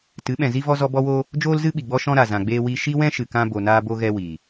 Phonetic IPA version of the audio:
tɨ˨˦ɓɛ̃˨zi˦ vɔ˦zɔ˦bɔ˦woː˦ | d͡ʒoː˦lzɨ˦ ɓi˨ɡ͡bɔ˦ʃɔ̃˦ɾa˨ zã˨ɡ͡beː˧ wi˦ ʃi˦wɛ̃˦ʃɨ˨kã˧ bo˨naː˧bo˧ɣɛ˧ wiː˨

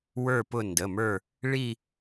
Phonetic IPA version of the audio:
wə˞˦˨pʊ˦˨ndə˩˧˩mə˞˦˨ | ɭi˦˨

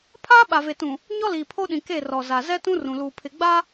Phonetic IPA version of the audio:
pʰaː˦ɓa˨ve˨tũ˨ | ɲɔ˦liː˨pʰo˦ɗĩ˨ ke˦˨rɔ˨za˨ zɛ˦tũ˦rũ˨luː˨ pʰɪ˨ɡ͡ba˦

